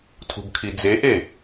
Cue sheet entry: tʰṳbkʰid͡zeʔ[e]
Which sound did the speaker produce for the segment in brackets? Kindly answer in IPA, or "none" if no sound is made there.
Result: e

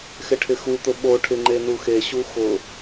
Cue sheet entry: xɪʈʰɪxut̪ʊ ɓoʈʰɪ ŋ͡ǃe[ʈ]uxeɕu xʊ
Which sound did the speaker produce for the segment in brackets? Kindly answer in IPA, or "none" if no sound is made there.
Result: n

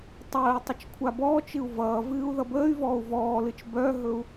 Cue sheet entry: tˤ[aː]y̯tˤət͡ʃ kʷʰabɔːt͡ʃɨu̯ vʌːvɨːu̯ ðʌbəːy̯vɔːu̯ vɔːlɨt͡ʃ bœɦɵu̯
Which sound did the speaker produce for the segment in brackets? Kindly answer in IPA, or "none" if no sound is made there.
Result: əː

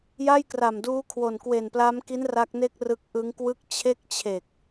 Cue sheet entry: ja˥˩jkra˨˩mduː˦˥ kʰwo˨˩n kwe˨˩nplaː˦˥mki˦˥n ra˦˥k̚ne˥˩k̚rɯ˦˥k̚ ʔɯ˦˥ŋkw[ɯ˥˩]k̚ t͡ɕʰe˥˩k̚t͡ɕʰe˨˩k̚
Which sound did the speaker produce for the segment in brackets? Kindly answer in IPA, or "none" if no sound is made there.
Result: ɯ˥˩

